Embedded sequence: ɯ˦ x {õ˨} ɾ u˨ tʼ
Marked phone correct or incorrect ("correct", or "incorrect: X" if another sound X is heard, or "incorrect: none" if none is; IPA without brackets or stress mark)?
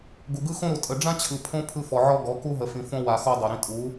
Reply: incorrect: õ˦